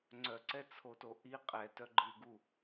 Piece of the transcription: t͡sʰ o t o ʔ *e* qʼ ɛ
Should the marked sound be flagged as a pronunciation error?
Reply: yes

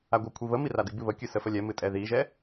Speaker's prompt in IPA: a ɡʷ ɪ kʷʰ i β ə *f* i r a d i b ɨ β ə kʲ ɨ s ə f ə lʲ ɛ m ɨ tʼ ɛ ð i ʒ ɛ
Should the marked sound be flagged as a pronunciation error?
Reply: yes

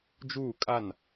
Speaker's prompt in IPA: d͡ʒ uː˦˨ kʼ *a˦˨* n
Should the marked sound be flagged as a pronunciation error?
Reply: no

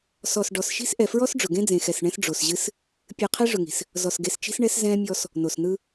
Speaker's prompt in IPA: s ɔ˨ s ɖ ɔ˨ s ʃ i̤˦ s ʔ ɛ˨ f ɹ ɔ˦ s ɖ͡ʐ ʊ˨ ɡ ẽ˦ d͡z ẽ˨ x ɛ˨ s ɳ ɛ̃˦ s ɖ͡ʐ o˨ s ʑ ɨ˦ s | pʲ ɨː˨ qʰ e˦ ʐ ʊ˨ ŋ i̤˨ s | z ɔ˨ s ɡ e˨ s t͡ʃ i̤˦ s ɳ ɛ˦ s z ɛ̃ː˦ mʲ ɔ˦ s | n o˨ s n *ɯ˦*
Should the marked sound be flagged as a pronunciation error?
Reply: no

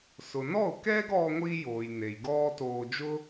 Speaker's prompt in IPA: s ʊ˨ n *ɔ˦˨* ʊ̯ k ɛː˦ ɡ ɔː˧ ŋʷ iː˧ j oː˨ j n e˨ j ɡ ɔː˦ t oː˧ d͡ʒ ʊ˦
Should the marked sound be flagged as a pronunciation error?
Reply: no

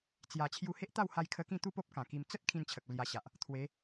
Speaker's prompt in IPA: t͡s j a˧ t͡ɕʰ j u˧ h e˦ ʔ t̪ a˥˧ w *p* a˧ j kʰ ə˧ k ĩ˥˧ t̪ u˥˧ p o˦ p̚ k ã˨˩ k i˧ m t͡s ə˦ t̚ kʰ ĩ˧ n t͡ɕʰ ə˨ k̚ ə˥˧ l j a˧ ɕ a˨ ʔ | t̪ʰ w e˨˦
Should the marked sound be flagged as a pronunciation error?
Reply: yes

